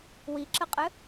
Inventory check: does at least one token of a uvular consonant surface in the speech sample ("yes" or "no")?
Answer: yes